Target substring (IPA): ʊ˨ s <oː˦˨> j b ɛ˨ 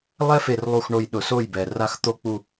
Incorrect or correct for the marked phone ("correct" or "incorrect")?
incorrect